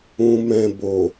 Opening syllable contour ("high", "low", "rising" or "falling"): low